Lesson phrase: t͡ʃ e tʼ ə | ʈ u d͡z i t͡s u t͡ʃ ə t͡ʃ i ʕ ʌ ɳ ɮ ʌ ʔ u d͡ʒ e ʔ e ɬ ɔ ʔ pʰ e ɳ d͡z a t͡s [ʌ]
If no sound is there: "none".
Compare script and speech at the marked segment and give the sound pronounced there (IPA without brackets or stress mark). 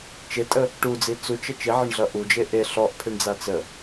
ə